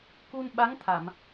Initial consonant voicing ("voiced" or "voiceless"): voiceless